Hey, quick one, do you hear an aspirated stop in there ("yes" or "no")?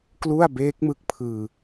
yes